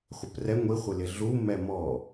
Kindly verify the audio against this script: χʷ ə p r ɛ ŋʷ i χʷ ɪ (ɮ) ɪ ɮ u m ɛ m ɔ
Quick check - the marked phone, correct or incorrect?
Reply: incorrect